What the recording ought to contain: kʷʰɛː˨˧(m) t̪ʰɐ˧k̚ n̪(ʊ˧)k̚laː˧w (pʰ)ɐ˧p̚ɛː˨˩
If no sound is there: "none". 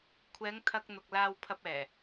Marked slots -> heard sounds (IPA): ŋ, ʊ˨, pʰ

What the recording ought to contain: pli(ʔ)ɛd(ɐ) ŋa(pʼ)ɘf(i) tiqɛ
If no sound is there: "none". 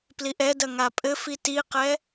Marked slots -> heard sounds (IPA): ʔ, ɐ, pʼ, i

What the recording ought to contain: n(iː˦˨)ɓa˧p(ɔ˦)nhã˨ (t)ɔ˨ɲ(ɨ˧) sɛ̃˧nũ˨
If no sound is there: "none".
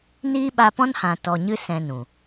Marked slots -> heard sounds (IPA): iː˦, ɔ̃˦, t, ɨ˧

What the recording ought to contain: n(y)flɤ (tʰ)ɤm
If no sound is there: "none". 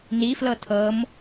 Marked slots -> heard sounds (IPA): i, tʰ

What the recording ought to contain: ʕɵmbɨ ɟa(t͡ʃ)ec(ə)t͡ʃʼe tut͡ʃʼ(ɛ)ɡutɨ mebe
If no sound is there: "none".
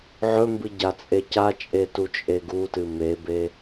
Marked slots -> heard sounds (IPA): t͡sʼ, a, e

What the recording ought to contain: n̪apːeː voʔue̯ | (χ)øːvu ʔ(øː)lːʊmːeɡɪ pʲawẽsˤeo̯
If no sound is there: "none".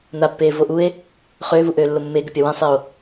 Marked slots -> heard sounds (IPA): χ, øː

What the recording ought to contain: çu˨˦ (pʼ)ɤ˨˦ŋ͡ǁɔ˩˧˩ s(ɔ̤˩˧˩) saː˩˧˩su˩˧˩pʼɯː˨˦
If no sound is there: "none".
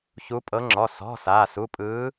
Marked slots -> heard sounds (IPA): pʼ, ɔ̤˩˧˩

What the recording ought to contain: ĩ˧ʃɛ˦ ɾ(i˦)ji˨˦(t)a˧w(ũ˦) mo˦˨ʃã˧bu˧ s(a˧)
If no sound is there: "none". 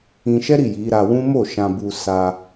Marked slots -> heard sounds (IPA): i˦˨, ɾ, ũ˦, a˧

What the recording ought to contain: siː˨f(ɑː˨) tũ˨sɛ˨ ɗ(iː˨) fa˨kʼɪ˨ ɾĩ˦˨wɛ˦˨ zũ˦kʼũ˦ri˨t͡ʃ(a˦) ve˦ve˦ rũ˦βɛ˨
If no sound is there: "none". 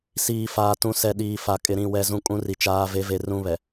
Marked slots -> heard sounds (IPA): aː˨, iː˨, aː˦

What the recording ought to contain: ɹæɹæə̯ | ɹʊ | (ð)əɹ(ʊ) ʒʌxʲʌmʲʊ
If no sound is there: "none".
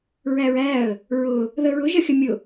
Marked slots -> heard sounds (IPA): ð, ʊ

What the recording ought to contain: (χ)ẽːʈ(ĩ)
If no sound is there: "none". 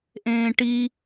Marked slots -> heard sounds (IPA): ʔ, i

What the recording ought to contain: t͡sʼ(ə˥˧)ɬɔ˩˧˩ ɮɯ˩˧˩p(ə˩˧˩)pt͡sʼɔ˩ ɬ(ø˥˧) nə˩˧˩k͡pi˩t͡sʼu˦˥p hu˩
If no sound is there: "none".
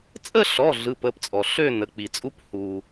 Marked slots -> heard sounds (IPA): ə˥˧, ə˩˧˩, ø˥˧

